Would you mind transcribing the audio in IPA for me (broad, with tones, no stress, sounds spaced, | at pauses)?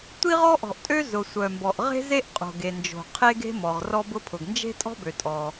tʷ i˥ ʁ ɔ˥ ʔ ɔ̤˩ ʔ tʼ ø˥ z ʊ˩ sʷ œ˩ m b ɔ˩ ʔ ʁ e̤˥ z e˥ ʔ qʼ o̤˩ ɡ e˩ n d͡ʒ o̤˩ qʰ e˥ ɡ e̤˥ m ɔ˩ ʁ r ɔ˥ b ʊ˥ pʰ ʊ˩ ɡ n d͡ʒ e̤˥ tʼ ɔ̤˥ b ø˩ tʼ ɔ˩